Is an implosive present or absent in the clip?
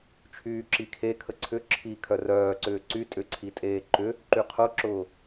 absent